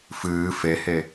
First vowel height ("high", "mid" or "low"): high